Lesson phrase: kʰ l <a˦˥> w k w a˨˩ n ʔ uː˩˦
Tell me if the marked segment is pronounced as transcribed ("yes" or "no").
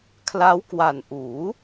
yes